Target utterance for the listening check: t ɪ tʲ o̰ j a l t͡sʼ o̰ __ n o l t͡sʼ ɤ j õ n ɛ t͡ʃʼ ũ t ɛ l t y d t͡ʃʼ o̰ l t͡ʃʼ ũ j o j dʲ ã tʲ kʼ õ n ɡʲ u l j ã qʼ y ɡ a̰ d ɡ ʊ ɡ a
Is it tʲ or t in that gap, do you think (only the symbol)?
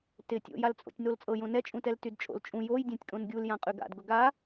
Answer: tʲ